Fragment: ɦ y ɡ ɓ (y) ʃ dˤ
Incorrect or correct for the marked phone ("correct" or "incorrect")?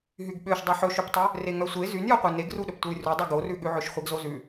incorrect